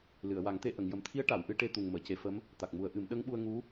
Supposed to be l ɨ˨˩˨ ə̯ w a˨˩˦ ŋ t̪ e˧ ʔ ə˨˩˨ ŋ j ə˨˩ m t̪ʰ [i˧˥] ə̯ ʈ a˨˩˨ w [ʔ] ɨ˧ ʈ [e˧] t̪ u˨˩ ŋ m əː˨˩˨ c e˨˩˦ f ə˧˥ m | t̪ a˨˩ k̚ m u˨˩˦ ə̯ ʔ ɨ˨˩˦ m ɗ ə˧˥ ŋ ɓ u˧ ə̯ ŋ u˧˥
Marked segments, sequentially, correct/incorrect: correct, correct, correct

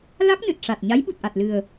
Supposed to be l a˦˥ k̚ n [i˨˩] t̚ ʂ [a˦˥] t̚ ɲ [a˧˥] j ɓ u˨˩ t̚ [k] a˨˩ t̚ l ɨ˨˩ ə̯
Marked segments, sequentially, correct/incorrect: incorrect, incorrect, correct, incorrect

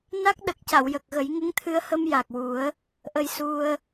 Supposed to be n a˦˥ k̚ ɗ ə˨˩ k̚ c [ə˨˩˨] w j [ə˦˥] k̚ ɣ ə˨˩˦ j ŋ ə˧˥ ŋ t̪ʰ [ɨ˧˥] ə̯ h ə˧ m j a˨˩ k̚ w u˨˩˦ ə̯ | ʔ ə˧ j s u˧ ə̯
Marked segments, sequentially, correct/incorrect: incorrect, incorrect, incorrect

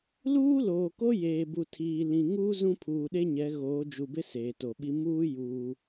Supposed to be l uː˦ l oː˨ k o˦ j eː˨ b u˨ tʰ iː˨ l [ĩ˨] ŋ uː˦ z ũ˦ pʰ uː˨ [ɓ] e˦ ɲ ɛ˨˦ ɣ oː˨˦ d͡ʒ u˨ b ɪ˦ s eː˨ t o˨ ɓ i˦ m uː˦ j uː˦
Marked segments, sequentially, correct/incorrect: correct, incorrect

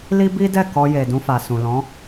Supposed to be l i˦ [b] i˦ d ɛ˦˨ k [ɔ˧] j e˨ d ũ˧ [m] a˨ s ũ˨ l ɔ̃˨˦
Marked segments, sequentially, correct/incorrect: correct, correct, incorrect

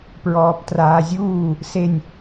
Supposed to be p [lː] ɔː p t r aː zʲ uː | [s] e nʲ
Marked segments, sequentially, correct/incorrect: incorrect, correct

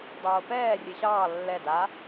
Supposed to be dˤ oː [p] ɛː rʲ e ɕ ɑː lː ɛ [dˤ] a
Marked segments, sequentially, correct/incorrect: correct, incorrect

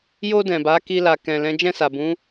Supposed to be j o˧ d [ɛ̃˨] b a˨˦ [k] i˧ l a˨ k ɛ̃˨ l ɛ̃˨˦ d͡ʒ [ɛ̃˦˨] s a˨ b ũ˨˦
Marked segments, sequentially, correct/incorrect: correct, correct, correct

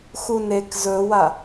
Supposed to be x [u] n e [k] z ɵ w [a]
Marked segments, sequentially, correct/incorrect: correct, correct, correct

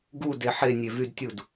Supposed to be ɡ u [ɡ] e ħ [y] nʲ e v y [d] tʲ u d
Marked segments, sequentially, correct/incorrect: incorrect, incorrect, correct

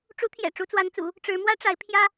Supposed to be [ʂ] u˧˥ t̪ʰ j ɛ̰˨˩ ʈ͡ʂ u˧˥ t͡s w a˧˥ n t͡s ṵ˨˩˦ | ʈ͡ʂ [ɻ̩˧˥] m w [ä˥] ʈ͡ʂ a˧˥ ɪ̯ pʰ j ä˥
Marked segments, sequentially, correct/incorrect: incorrect, correct, correct

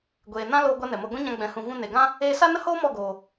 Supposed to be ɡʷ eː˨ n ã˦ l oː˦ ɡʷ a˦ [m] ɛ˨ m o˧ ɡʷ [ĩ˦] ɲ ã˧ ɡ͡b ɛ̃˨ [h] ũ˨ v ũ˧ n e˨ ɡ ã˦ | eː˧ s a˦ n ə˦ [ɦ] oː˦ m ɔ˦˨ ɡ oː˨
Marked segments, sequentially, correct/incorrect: incorrect, correct, correct, incorrect

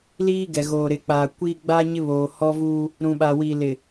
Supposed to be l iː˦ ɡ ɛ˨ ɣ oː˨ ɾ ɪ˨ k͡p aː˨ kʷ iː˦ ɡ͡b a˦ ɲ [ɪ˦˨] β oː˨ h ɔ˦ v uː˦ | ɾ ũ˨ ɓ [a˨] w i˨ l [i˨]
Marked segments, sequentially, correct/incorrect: incorrect, correct, incorrect

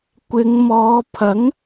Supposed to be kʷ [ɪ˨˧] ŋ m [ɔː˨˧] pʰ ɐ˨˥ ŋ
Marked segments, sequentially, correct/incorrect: correct, correct

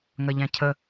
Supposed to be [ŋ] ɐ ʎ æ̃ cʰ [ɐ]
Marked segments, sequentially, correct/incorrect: correct, incorrect

